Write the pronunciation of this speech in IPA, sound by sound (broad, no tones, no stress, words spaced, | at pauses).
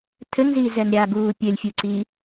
tʰɘŋziːzɛn ɾʲaɡuː pʲɘlʲfʲuǀi